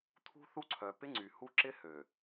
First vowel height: high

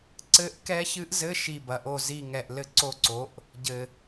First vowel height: mid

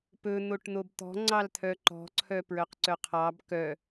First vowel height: mid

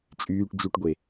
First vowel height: high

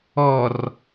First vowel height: mid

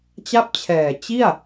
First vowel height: low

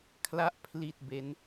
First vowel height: low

